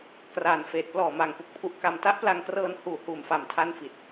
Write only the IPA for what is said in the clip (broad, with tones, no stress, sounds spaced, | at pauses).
k r aː˨˩ n f eː˨˩ t̚ p l ɔː˨˩ m aː˨˩ ŋ p u˨˩ k̚ pʰ u˦˥ ʔ k a˧ m t a˦˥ ʔ p l a˧ ŋ k r ɤː˧ n h uː˨˩ h uː˨˩ m f a˨˩ m tʰ a˥˩ n f i˨˩ t̚